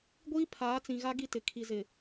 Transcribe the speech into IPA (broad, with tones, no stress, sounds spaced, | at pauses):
ɡʷ iː˦ pʰ aː˨˦ t͡s ĩ˨ ɣ a˦ ɡ i˦ t ɪ˨ kʰ i˨ z ɪ˨